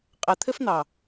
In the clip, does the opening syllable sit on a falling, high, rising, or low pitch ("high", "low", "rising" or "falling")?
low